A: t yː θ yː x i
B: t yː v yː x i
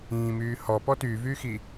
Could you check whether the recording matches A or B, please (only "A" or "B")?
B